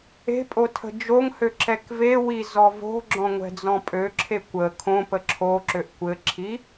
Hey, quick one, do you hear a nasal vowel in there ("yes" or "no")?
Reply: yes